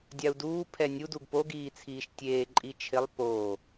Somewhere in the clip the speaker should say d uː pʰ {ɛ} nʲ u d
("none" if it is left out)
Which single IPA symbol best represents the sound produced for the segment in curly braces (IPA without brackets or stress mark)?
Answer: ɛ